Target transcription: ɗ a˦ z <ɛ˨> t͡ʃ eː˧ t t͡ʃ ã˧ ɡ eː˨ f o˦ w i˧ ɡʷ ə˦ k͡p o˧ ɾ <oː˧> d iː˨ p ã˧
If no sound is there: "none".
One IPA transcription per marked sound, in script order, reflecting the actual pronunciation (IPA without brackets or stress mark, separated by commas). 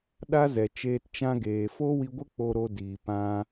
ɛ˨, o˧